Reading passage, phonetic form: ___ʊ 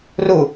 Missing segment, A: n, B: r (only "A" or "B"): B